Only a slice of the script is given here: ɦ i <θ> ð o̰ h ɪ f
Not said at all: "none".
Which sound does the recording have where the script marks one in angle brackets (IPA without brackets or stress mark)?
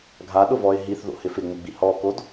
θ